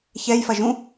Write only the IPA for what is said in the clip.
ç ɛ j f ɐ ʒ ũ

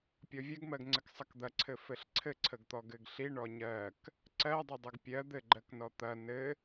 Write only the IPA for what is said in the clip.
pʲ ɔ vʲ ɐ ɡ m ɜ ɡ ŋ͡ǀ ɘ k sˤ ɐ k d̪ ɐ ǀʰ ɘ f ɘ ɬ ǀʰ ɘ ǀʰ ə ɡ t̪ ɔ ɡ ɘ ɡ ɬ i ɳ ɔ ɲ ɜ k | ǀ ɜ dˤ ɘ dˤ ə ɡ pʲ ɜ d̪ ɘ ɡ͡ǃ ɜ k n ɔ t̪ ɐ n ɘ

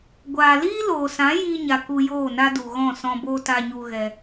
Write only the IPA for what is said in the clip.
ɡʷ aː˨ l iː˦ l oː˨ s ã˨˦ j iː˧ ɲ a˨ k u˧ j oː˦˨ n a˦ d u˨ ɣ ɔ̃˦˨ s ɔ̃˧ b oː˧ t a˧ ɲ u˧ ɣ ɛ˧

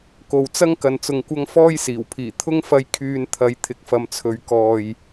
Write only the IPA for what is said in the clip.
k o˨ w t͡s ɐ˥ ŋ k ɐ˨ n t͡s ʊ˨ ŋ kʷ ɐ˧ ŋ f ɔː˥ j s iː˨˩ w pʰ iː˨˩ t̪ʰ ʊ˧ ŋ f ɐ˨˧ j kʰ yː˨ n t̪ʰ ɐ˨˧ j t̪ʰ ɪ˨ k̚ f ɐ˨ m t͡sʰ ɵ˨ ɥ k ɔː˨ j

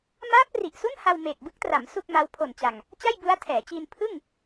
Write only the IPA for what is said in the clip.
m aː˦˥ p̚ r i˨˩ ʔ s u˥˩ n h a˧ w m eː˨˩ k̚ b ɯ˦˥ k̚ t r a˩˦ m s u˥˩ k̚ m a˦˥ w pʰ o˨˩ n t͡ɕ a˨˩ ŋ | t͡ɕ a˥˩ j b u˦˥ a̯ tʰ ɛː˩˦ t͡ɕ iː˧ n pʰ ɯ˥˩ ŋ

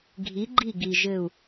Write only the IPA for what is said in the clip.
ɡʱ i˩˧ ɡ͡ǃ i˧˩ ɡ i˩ ʒ ɘ˧˩ u̯

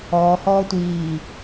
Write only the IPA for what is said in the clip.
ɔː h ɔː tʷ iː

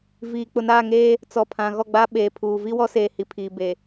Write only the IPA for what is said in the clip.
v iː˨ k͡p ʊ˨ n aː˦˨ ŋ eː˦ | t͡s ɔ˨ pʰ ã˨ ɣ ɔ˦˨ ɡ͡b a˦ ɓ eː˨ pʰ uː˨ v i˦ w ɔ˦ s eː˨ h i˨ pʰ iː˨ b e˨

